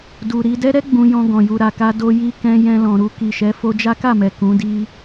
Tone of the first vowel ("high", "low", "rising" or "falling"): low